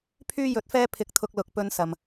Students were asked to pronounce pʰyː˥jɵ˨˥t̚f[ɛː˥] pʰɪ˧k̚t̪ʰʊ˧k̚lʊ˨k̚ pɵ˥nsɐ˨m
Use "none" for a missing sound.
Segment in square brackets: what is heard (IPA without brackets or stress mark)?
ɛː˥